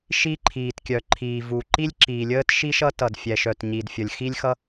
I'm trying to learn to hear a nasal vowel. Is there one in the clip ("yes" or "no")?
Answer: no